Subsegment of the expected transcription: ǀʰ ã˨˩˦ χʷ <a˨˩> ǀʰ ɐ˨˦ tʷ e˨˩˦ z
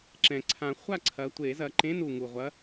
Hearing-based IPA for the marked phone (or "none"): a˥˨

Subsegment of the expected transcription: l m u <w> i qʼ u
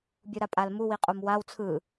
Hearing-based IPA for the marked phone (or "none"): w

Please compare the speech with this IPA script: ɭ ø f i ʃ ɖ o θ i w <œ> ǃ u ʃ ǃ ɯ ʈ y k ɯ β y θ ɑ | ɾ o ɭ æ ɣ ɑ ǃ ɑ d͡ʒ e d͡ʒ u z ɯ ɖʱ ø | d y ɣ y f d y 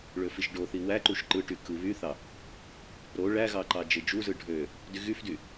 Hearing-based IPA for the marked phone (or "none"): æ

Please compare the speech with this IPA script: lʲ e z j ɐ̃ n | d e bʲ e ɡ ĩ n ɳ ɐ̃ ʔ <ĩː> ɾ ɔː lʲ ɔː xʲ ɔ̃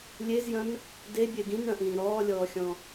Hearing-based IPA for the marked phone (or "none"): ĩː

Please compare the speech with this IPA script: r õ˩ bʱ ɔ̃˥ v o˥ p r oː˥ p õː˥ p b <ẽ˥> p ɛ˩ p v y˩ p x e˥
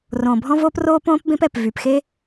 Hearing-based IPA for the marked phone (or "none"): ẽ˥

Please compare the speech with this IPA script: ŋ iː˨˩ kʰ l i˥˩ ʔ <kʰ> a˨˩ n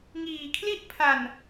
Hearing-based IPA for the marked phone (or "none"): pʰ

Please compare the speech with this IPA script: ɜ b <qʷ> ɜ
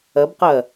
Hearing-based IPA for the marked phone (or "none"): q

